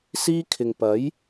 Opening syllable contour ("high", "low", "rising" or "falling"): high